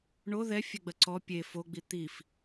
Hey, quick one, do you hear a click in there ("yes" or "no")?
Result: yes